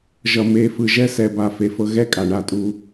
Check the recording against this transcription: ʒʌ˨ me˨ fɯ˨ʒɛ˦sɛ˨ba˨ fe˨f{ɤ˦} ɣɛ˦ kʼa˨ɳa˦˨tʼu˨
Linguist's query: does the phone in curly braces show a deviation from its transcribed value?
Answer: no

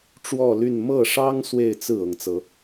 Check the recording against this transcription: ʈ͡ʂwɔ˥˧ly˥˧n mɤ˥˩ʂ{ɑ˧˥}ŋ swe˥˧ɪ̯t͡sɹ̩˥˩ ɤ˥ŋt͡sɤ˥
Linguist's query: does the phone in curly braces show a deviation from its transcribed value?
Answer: yes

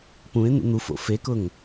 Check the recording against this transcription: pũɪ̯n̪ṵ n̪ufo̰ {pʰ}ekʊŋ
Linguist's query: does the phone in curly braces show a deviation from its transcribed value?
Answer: yes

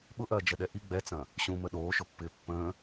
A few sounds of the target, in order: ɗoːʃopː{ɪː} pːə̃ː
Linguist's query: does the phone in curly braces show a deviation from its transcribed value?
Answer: no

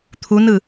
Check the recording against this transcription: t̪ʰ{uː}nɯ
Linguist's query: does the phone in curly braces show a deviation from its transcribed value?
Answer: yes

